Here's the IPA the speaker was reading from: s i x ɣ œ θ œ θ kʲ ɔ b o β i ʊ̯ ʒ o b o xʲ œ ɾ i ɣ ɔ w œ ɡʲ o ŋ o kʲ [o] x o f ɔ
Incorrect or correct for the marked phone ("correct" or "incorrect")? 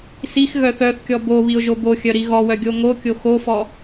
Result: correct